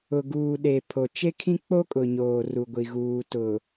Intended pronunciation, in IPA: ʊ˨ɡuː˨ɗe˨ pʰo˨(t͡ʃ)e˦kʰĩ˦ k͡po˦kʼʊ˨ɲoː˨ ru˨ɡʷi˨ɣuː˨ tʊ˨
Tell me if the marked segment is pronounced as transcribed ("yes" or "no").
yes